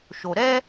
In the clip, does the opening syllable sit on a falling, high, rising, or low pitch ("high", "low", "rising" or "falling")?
low